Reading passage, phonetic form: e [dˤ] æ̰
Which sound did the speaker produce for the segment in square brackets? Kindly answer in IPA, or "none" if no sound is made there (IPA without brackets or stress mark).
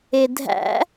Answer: dʱ